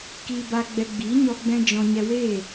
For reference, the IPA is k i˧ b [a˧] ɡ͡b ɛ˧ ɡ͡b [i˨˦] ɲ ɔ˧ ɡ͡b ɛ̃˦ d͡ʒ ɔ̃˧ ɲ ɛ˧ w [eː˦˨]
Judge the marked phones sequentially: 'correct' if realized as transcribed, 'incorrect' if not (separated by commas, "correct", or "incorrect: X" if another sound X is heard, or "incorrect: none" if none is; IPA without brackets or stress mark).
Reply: correct, correct, correct